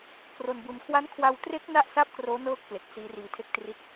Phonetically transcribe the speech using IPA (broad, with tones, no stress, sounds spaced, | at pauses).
k r o˧ n b u˧ n kʰ w a˦˥ n kʰ w a˧ w t r e˦˥ k̚ n a˥˩ ʔ s a˥˩ p̚ k r oː˦˥ n ɤː˦˥ k̚ p l e˨˩ k̚ s iː˦˥ r iː˧ tʰ e˥˩ k̚ t r i˥˩ t̚